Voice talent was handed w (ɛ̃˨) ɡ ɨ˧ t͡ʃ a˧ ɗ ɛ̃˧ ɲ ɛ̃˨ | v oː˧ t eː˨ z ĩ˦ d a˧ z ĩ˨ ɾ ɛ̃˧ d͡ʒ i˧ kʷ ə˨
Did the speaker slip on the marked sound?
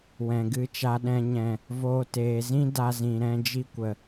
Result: no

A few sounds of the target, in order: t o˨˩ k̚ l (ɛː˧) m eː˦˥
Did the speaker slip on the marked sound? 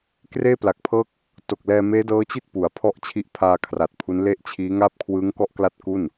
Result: no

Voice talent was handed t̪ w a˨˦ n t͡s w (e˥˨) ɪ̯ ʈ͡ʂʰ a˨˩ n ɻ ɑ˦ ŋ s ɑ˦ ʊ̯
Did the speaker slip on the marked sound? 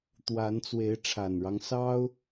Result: yes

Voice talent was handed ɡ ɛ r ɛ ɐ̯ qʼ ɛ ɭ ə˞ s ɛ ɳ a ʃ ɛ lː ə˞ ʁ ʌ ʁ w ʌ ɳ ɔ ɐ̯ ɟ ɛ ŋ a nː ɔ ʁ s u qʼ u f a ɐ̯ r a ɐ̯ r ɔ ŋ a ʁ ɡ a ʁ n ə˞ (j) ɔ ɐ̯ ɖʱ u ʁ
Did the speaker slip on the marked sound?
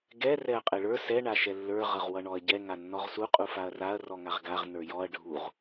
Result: no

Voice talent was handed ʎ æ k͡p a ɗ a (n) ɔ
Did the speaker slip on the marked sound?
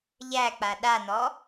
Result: no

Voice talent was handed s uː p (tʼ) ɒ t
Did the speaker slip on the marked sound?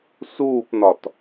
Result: yes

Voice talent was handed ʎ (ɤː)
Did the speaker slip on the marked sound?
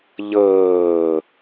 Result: no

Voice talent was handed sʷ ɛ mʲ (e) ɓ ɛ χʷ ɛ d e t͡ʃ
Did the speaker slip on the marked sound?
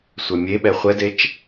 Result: no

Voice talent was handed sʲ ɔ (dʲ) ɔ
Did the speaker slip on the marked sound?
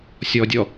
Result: no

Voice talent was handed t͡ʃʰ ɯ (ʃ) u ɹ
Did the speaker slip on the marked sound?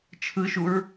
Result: no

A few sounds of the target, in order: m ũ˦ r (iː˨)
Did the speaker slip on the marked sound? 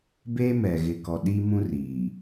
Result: no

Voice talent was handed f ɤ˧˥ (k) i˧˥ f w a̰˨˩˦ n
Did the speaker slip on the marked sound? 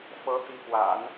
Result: yes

